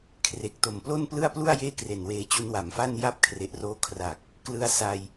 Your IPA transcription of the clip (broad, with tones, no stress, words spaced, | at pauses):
kʰre˨˩k̚to˨˩mplo˥˩n plɯ˥˩a̯plu˥˩a̯ jeː˥˩kre˨˩nweː˧t͡ɕu˦˥n wa˨˩mfa˥˩n ja˥˩p̚kʰre˨˩ʔroː˦˥ kʰra˨˩k̚ | klɯ˦˥a̯sa˧j